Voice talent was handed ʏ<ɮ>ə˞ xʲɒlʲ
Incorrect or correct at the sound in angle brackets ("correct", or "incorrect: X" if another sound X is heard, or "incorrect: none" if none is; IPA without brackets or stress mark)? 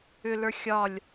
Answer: incorrect: l